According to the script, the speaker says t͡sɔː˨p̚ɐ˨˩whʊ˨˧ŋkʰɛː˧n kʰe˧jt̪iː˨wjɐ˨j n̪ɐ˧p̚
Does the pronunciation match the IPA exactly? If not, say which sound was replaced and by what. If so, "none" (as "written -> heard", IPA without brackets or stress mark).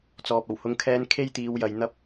none